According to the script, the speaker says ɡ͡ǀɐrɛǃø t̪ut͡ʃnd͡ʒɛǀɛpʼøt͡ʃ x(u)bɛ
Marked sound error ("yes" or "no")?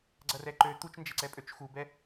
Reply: no